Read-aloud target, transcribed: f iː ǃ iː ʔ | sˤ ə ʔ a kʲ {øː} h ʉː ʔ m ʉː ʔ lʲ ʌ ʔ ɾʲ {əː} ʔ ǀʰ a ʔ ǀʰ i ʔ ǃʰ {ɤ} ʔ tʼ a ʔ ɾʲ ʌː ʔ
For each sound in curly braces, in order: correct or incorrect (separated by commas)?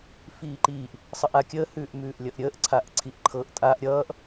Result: incorrect, correct, correct